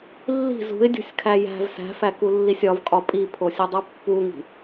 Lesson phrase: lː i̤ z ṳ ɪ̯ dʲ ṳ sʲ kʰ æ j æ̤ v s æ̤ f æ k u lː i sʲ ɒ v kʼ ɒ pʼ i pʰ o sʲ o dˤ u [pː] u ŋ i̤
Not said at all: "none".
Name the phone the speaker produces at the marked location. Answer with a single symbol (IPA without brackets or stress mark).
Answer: pː